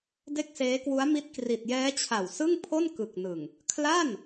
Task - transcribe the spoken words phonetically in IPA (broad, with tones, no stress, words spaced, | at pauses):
de˥˩k̚seː˦˥kwu˦˥a̯mi˦˥t̚ kri˨˩t̚jɛː˦˥ t͡ɕʰa˨˩wsɯ˥˩ŋpʰo˥˩n kɯ˨˩k̚nɯ˨˩ŋ | kʰla˥˩n